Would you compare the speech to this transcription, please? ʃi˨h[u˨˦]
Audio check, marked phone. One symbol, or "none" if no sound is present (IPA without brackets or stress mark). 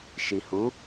u˨˦